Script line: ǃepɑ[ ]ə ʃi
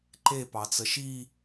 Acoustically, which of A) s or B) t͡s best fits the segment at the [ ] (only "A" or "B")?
B